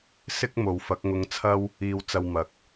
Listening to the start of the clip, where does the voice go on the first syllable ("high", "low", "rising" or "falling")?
high